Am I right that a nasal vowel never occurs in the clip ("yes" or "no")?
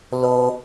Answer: yes